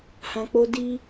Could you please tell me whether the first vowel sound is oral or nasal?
nasal